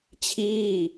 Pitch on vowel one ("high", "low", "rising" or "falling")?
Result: falling